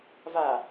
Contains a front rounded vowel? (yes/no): no